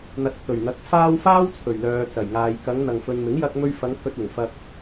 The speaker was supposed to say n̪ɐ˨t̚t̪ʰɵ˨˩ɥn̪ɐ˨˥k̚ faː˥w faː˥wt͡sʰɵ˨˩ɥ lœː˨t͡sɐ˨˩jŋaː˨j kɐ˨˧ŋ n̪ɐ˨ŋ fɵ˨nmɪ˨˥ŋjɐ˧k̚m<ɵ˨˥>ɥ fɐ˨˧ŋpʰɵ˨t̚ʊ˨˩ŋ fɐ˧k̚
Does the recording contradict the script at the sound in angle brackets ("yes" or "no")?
yes